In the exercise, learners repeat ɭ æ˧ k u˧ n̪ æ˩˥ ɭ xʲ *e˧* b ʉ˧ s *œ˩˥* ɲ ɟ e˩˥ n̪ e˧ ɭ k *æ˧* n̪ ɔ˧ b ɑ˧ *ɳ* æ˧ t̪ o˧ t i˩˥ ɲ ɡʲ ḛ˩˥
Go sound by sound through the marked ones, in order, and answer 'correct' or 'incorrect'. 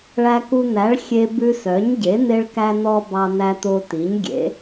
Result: correct, correct, correct, incorrect: n̪

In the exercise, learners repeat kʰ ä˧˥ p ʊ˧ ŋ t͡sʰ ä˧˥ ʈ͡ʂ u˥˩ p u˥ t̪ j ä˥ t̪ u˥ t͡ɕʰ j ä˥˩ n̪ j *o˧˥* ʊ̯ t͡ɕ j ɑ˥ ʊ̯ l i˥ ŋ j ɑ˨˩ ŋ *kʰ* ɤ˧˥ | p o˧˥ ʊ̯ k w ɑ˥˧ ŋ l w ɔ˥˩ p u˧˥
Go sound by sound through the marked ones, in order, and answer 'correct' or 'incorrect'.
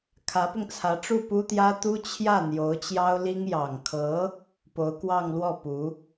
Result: correct, correct

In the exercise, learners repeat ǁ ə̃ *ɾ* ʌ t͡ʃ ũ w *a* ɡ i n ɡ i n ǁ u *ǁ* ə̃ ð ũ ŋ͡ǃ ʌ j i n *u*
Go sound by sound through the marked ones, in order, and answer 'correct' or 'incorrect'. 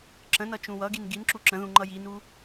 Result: incorrect: n, incorrect: ʌ, correct, correct

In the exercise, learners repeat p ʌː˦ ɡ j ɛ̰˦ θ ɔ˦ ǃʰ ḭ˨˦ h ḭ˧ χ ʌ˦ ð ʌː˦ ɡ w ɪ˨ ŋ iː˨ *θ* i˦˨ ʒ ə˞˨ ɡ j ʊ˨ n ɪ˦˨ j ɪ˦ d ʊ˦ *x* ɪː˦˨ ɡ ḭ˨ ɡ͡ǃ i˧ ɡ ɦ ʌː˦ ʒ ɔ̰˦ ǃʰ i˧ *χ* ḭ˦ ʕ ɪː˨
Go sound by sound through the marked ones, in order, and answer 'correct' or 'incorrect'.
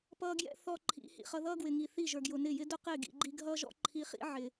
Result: correct, incorrect: q, correct

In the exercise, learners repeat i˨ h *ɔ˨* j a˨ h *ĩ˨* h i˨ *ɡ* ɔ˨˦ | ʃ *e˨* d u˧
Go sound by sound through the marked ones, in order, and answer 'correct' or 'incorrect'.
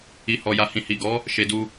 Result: correct, correct, correct, correct

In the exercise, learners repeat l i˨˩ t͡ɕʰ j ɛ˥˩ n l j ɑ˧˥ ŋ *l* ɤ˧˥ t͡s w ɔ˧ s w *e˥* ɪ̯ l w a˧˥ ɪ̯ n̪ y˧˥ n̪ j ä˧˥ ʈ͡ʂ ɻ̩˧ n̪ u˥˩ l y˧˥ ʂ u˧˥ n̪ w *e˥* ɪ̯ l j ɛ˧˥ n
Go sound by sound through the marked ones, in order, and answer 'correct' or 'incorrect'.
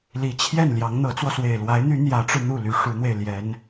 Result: incorrect: n̪, incorrect: e˨˩, incorrect: e˧

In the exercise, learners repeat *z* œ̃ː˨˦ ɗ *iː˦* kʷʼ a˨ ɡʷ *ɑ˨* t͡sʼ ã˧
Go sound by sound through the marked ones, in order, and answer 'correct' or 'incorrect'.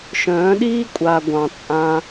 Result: incorrect: ʃ, correct, incorrect: ɑ̃˨

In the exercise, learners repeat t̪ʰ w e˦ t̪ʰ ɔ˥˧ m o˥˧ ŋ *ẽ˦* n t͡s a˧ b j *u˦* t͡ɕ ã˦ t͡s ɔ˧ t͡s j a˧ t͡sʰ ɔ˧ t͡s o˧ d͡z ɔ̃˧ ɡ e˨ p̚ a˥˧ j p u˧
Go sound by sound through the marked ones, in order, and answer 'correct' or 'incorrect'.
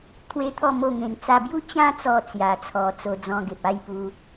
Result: incorrect: ẽ˧, correct

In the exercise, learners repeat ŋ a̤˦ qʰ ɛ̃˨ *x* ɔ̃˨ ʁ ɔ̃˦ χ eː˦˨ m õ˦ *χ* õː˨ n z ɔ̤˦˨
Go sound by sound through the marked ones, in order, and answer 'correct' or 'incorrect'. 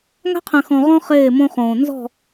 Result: correct, correct

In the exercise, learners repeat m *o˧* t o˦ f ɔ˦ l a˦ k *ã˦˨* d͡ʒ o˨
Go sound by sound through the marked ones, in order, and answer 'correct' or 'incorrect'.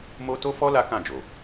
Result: incorrect: o˦, correct

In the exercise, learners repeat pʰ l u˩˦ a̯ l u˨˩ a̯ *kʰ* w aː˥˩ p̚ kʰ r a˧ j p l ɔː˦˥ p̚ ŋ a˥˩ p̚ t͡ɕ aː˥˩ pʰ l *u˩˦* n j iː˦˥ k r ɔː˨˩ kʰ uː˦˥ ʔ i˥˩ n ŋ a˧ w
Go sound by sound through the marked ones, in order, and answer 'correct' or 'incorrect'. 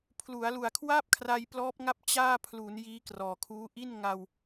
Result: correct, correct

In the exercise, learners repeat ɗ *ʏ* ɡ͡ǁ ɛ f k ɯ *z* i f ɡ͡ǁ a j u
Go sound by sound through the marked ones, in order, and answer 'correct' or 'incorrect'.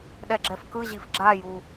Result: incorrect: ɛ, incorrect: ʑ

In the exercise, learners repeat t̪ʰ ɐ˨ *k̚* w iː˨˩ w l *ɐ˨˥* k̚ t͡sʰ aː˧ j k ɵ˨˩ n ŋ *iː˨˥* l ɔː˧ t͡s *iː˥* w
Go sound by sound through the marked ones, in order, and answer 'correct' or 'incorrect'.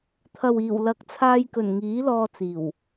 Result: incorrect: none, correct, correct, incorrect: iː˨˩

